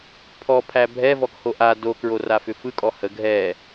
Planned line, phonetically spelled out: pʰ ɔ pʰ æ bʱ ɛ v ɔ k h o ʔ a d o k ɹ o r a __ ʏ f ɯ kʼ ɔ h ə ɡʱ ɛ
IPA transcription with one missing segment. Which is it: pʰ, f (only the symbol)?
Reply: f